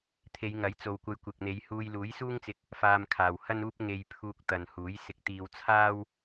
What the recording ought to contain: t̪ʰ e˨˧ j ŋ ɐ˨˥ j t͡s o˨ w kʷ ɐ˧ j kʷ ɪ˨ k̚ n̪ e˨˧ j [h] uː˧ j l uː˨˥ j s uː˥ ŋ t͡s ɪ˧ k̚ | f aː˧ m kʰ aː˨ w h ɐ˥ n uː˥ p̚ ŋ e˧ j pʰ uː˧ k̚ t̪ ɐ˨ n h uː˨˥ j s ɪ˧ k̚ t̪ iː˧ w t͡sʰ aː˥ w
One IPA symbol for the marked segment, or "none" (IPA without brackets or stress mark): h